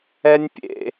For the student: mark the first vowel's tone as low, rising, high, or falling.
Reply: high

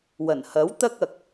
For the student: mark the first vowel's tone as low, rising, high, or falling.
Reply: low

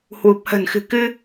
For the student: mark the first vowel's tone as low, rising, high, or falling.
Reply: low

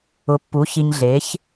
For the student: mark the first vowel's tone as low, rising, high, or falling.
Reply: rising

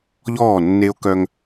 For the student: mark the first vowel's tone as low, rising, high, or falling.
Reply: falling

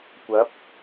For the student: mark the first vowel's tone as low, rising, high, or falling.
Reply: rising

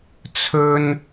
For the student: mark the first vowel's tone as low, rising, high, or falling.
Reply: high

